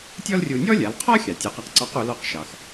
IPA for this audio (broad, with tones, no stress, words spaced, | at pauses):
tʲɔ˥lrʲu˧ nʲɔ˥lʲa˩˧lqʰɔ˥xʲɑ˩ tʲu˩˧qa˧qǀɑ˧˥q u˩˧lɔ˧qʃɑ˩x